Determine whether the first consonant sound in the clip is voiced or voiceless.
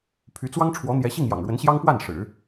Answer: voiceless